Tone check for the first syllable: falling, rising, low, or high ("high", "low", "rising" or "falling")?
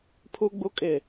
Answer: high